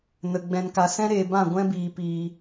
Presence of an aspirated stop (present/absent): absent